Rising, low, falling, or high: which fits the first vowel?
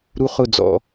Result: high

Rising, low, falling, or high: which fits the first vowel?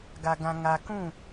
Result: low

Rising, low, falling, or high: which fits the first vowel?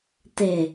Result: low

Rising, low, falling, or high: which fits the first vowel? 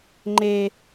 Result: low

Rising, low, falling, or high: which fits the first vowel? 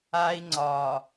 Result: high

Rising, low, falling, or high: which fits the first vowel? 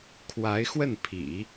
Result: rising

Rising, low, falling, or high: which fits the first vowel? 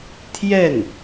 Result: falling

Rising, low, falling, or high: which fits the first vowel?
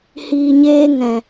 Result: low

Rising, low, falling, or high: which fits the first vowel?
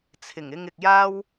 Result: low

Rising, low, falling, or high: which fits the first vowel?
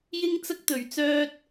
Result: high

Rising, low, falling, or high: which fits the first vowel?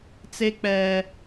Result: high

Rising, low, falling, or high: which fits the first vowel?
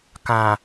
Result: low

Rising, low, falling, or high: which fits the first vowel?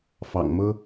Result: low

